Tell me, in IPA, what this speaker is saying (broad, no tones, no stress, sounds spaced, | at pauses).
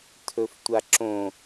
tʰ ɵ f tʷ a ǁ õ